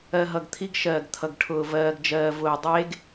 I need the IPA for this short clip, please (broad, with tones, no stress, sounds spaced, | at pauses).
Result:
ɜ˨ ɦ ʌ˨ ɡ t̪ʰ i˦ ɡ ʃ ɜː˨ ɡ t̪ʰ ʌ˨ ɡ ʈʰ ʊː˨ v ɜː˨ ɡ d͡ʒ ɜː˨ v ʊː˨ dˤ eː˦ ɡ